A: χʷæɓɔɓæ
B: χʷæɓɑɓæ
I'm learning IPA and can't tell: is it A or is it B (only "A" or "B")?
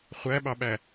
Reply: B